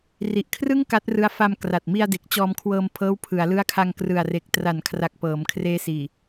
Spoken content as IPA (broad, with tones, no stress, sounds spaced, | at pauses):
r i˨˩ ʔ kʰ r ɯ˥˩ ŋ k a˦˥ t̚ r ɯ˦˥ a̯ f a˧ m k r a˨˩ t̚ m i˧ a̯ d e˨˩ k̚ t͡ɕ ɔː˧ m kʰ w ɤː˧ m pʰ ɤː˦˥ w pʰ ɯ˩˦ a̯ l ɯ˦˥ a̯ kʰ a˧ ŋ k r ɯ˨˩ a̯ r e˨˩ k̚ t r a˩˦ n kʰ r a˨˩ k̚ p ɤː˩˦ m kʰ r eː˦˥ s iː˨˩